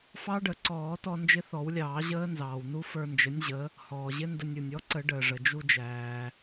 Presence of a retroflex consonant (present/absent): present